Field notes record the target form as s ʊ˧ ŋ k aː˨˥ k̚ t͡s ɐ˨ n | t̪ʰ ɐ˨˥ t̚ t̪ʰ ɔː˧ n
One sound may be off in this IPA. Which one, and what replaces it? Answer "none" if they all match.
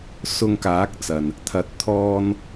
none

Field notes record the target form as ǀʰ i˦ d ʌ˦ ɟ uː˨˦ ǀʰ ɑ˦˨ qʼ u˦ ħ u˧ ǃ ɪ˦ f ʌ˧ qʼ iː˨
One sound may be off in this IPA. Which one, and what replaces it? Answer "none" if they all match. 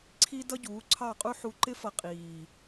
none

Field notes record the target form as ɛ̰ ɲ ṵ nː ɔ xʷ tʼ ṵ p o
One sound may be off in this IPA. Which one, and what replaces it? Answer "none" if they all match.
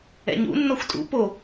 none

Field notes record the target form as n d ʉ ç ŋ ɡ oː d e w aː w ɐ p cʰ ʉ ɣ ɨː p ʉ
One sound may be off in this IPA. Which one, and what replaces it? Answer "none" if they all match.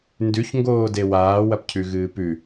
none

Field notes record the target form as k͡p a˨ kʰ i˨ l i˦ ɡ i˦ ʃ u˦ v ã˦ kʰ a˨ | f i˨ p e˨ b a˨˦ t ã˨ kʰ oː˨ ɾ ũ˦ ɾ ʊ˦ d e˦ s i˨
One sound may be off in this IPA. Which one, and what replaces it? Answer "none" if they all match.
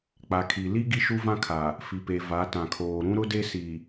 b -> v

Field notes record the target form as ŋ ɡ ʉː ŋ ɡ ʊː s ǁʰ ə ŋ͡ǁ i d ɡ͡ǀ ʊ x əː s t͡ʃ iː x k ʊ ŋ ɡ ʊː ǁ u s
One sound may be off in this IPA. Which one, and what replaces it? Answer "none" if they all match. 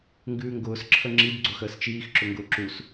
k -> ǁ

